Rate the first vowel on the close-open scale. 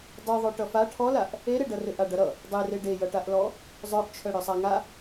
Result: mid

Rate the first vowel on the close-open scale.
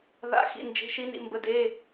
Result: open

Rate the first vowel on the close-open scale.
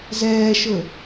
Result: mid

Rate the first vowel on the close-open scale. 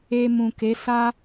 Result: mid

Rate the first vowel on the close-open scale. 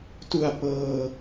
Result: close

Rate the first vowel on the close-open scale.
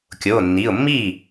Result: mid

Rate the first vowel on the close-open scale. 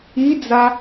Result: close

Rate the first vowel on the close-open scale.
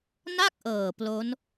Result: open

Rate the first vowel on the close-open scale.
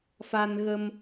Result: open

